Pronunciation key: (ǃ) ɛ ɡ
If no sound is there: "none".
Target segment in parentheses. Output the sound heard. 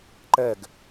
ǃ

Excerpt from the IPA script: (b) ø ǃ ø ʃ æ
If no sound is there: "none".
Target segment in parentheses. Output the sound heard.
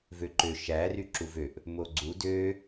v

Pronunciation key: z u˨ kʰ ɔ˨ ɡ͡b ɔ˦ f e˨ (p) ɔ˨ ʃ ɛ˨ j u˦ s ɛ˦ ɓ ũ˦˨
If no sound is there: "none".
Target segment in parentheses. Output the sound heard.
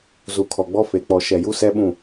k͡p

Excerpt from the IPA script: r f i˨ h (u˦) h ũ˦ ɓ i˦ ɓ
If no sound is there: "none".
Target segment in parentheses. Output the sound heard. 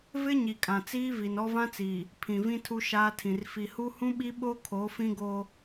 u˦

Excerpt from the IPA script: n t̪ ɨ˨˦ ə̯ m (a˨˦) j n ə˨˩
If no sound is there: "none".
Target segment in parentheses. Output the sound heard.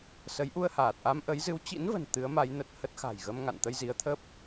a˨˦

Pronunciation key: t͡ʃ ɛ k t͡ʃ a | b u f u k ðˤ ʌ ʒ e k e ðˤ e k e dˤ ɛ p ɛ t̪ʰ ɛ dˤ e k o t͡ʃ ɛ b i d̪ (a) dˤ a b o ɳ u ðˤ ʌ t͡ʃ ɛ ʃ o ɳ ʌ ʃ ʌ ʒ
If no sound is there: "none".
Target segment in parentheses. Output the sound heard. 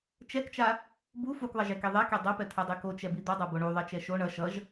ʌ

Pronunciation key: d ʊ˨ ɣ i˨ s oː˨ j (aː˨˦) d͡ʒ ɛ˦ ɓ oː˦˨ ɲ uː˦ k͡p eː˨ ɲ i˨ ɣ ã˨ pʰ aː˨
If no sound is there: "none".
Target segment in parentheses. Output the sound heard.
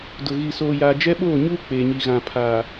aː˨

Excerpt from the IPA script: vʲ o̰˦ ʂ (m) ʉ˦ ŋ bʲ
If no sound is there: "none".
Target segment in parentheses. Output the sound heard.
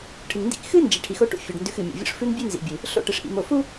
f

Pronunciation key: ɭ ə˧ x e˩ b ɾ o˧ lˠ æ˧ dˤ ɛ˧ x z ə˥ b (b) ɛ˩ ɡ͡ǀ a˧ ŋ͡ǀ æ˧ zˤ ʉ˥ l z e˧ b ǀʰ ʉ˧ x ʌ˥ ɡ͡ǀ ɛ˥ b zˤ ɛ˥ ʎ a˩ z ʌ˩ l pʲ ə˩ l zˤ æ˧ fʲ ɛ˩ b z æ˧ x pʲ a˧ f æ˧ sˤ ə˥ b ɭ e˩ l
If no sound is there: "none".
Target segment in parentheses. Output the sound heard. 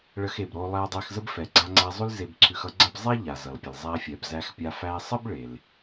f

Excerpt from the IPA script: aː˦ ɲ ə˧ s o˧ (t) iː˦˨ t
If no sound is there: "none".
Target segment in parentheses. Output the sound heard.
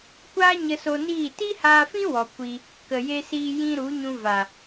n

